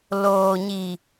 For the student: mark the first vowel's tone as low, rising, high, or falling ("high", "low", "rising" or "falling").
low